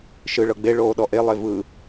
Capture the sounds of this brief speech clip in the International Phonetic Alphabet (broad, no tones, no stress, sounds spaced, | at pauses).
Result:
ʃ ɯ ɭ ɤ ɡ͡b e ɭ oː ɗ ɔ ʔ e lˠ e v ɯ